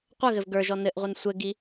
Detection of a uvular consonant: present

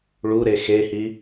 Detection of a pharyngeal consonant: absent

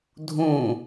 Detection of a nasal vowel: present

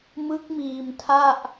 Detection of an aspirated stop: present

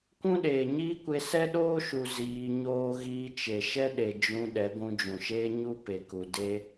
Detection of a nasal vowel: present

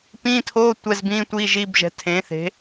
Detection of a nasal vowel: present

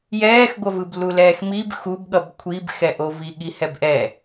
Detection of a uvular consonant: absent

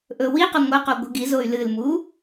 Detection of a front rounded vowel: present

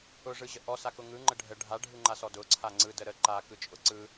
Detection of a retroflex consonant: present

